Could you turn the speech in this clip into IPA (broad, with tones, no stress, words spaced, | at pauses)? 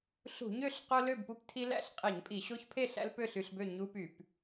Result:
ɬṳ˧˩˧ɲø˥˨ɬ qo˦lø˥˨bpu˦ptʰi˦ læ̰˥˨ɬqʼe˧˩˧ɲpʼi˧˩˧ ɕo˦çpʰe˥˨ɬæ̰˦l pø˥˨ɬy˥˨ɬbø˥˨ ɲu˦py˧˩˧p